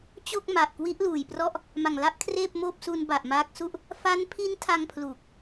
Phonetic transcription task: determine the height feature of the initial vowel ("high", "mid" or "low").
mid